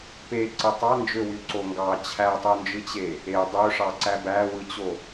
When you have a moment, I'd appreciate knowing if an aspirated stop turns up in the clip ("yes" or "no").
yes